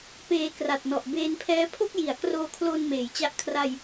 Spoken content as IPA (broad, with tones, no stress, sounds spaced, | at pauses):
p eː˧ k r a˨˩ t̚ n ɔ˨˩ ʔ b eː˧ n pʰ ɛː˦˥ pʰ o˥˩ k̚ j i˩˦ a̯ k r oː˧ kʰ l oː˧ n m eː˩˦ j t͡ɕ a˦˥ ʔ kʰ r a˧ j